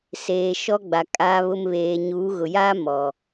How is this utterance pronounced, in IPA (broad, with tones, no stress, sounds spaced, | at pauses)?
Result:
s eː˨ ʃ ɔ˦ ɡ͡b a˨ kʼ aː˨ β ʊ˨ m β eː˨ ɲ uː˨˦ ɣ ʊ˨ j aː˦ m ɔ˨